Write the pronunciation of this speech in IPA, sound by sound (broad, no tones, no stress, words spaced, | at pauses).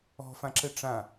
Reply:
ɔ̤fãǁɘ ʈ͡ʂã